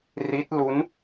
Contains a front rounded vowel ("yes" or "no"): no